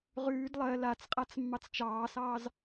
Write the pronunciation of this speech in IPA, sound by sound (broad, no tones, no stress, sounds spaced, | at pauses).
ʁ ʉː d lˠ ɜ l a t͡s qʼ a t͡s mː ɑ t͡s t͡ʃ ɑː s ɑː z